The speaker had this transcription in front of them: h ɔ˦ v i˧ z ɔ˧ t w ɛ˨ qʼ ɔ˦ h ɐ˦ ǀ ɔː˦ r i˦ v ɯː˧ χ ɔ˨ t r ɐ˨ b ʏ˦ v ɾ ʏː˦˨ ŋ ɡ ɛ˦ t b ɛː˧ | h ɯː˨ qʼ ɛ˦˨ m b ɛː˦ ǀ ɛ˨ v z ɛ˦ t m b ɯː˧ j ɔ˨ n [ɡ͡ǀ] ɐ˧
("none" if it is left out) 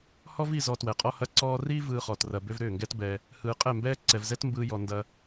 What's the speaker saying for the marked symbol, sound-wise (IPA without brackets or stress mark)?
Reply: d